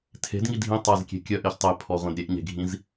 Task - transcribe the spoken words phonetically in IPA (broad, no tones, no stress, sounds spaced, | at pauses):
tʰ e̤ d ŋ i dʱ ĩ tˤ a z kʲ e̤ kʲ œ ʔ e ç tˤ e pʰ ɔ ʁʷ ẽ d ɾʲ e ʔ ɲ e̤ ɡʱ ĩ z